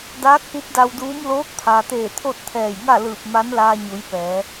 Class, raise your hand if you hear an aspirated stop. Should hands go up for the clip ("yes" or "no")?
yes